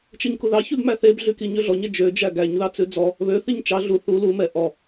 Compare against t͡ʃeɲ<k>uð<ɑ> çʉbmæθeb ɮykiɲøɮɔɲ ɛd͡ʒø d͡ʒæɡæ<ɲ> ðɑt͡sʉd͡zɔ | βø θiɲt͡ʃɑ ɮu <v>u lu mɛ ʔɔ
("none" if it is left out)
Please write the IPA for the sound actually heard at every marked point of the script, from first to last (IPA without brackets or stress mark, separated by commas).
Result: k, ɑ, ɲ, θ